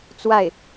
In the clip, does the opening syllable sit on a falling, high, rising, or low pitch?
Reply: falling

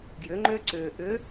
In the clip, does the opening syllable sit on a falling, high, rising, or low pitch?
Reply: rising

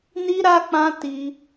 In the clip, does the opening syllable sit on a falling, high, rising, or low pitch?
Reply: high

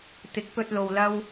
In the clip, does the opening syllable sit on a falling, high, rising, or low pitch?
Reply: rising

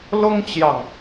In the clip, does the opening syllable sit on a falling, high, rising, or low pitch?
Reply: high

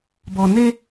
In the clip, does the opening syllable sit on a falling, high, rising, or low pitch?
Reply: low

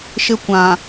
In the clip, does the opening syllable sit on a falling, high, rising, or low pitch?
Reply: high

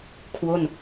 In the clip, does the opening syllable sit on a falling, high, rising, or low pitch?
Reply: falling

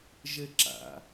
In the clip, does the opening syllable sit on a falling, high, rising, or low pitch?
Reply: high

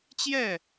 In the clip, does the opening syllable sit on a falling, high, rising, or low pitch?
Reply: falling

